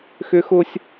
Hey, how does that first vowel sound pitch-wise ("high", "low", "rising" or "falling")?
high